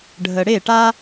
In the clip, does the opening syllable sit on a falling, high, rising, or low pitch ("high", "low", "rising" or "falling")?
low